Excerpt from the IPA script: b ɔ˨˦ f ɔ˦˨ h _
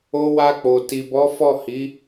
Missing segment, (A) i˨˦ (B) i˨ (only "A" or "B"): A